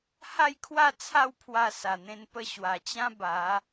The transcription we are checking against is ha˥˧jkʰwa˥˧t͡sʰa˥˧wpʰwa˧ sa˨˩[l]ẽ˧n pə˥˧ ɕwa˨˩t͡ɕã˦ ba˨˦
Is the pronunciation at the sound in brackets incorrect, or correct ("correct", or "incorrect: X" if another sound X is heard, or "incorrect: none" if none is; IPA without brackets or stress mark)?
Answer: incorrect: n̪